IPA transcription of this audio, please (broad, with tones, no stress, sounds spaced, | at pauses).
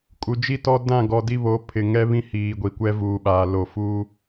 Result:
kʼ u˨ d͡ʒ i˦ t ɔ˦ d ã˦˨ ɡ ɔ˨ d i˦ β o˨˦ pʰ ɪ˨ ŋ ɛ˦ β ĩ˦ h iː˨ ɡʷ i˨ kʷ ɛ˦ v uː˨ ɓ aː˨ l o˨ f u˦